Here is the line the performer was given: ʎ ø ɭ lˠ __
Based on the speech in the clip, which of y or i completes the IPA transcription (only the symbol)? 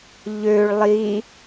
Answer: i